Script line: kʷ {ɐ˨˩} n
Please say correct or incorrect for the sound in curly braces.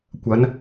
incorrect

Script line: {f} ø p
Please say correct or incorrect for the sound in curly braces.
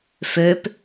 correct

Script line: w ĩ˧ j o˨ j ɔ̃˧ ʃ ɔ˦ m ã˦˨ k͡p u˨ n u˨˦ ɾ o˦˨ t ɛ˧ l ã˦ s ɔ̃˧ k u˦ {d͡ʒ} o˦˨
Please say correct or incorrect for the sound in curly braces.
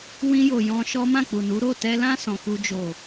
correct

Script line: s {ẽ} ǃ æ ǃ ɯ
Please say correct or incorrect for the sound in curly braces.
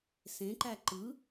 correct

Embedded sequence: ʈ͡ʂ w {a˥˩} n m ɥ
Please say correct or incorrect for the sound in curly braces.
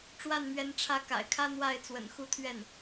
correct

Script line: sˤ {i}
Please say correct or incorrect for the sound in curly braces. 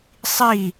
correct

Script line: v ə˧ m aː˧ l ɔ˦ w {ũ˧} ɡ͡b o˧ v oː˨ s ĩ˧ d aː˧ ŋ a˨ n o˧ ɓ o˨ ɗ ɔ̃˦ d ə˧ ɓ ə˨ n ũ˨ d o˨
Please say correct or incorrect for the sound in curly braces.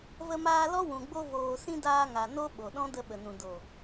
incorrect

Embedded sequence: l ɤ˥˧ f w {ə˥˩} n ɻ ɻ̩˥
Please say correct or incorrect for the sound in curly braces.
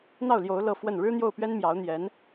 correct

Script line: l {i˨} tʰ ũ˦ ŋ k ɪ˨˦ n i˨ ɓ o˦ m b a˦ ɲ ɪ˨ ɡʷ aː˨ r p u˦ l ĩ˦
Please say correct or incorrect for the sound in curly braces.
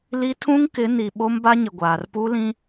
incorrect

